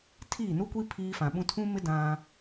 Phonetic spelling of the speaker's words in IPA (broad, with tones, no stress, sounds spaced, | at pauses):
tʰ iː˦˨ n u˦ kʷ i˦ pʰ iː˦ f ã˨ ɓ ũ˦ tʰ ũ˦ m ɪ˦ d ã˦